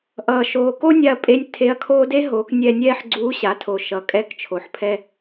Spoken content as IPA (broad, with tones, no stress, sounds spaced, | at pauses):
ʔ ʌː˩ ʃ oː˩ k o˥ nʲ a˧ ɐ̯ pʼ e˧ nʲ tʰ e˧˥ ɐ̯ kʰ oː˥ d e˥ ɦ o˩˧ k nʲ ɛ˧ nʲ ɛː˥ ħ ɡ͡ǀ uː˧˥ ɕ a˩˧ tʰ o˩ ʃ ʌ˩˧ kʼ ɛ˧˥ k t͡ʃʰ o˩ ħ pʰ ɛ˧